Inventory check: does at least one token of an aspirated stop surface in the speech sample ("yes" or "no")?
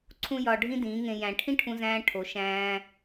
yes